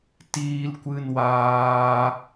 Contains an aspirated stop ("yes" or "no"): no